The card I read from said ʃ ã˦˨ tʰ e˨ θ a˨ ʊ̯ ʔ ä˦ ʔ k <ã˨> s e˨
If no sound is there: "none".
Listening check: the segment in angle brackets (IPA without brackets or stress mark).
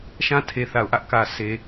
ä˨